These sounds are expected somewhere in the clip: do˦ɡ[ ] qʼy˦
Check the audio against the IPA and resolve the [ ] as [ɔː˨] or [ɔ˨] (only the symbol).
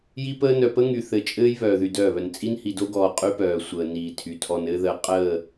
ɔː˨